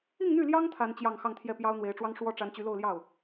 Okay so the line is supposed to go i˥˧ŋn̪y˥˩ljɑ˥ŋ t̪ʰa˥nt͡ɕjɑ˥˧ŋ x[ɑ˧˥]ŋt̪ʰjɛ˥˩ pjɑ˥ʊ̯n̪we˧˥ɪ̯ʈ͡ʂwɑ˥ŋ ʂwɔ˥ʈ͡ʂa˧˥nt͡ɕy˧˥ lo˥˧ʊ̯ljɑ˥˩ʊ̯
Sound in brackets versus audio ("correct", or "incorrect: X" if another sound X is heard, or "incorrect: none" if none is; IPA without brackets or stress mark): incorrect: ɑ˥˧